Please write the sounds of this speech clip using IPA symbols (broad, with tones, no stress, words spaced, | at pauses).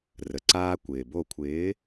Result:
rə˩ǀaː˦ kʷɪː˩ bo˧˩kʷʰɪː˨˥